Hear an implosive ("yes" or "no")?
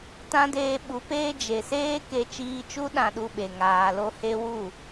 yes